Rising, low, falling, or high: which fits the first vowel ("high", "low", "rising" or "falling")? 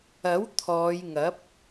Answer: rising